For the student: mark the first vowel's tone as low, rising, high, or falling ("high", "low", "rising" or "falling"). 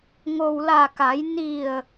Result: low